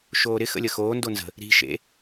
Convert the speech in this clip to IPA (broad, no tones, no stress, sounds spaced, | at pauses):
ʃ oː ɾ ɪ x ə̰ lʲ ə x oː n d o n z ə̤ | ɾ i̤ ʃ ḛ